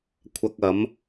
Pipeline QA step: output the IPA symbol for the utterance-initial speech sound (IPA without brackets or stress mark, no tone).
kʷʰ